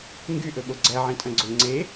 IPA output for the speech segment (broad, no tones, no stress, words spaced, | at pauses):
ŋɡyʔɵɓo ɡ͡ǀæʕĩtʼœ̃ɡ͡ǀɵ ŋ͡ǀe